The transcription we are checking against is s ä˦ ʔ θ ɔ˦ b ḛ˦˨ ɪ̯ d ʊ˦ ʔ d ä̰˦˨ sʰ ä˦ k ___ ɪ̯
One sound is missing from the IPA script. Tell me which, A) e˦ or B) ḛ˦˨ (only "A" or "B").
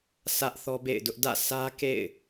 B